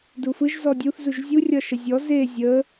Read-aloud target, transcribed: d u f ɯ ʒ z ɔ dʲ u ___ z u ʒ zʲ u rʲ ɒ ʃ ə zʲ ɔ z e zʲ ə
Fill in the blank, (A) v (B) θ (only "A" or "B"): B